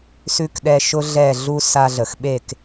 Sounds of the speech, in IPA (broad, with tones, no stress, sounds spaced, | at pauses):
s ʉ˦ k ɗ ɛ˦ ʃ ʊ˦ ɮ ɛ˦˨ ɮ u˦ s a˦ ɮ ə˨ x ɓ e˦˨ k